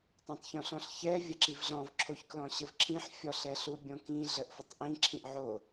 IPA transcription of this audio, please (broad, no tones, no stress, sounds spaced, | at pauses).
tˤ õ tˤ ç õ ɬ ɔ̃ ɬ ç ɛ vʲ ɐ ǁ i v ɮ ɔ̃ v ǁʰ o ç k l ɔ̃ ɕ ə v ǁʰ ĩ ħ fʲ ɔ ɬ ɛ ɬ u bʲ õ k ĩ ɮ ə ʔ f ə tˤ ʔ ĩ ǁʰ ĩ ʔ ʕ o